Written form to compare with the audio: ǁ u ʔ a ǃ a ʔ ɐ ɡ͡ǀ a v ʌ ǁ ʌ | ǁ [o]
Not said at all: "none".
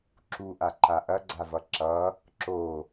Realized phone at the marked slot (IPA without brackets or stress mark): o